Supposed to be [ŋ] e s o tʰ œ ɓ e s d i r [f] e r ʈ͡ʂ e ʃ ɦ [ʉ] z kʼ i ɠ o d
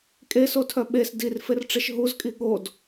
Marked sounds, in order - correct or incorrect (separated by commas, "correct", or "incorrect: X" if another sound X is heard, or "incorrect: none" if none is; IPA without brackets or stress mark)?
incorrect: kʼ, correct, incorrect: u